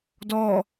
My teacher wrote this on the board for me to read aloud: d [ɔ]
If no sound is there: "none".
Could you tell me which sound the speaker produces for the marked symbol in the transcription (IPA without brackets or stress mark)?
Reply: ɔ